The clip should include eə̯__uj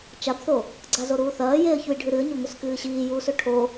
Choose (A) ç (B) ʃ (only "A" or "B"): A